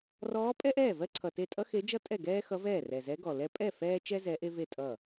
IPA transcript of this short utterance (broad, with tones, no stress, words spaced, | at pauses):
rɔː˧˥pʼɛ˥ʔɛː˥˩ vɜ˥ǀʰʌ˨˩te˥˩ tʼʌ˥xe˧˥d͡ʒʌ˥ tʼɛ˥˩ɡɛː˥xʌ˧˥ vɛː˥˩rɛ˨˩zɛ˧˥ɡɔ˨˩ lɛ˥ pʼɛ˥˩ fɛː˥ t͡ʃɛ˥ zɛ˧˥ʔe˥ve˥˩ tʼʌ˥˩